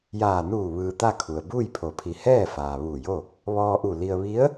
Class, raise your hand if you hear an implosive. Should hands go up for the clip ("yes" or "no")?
no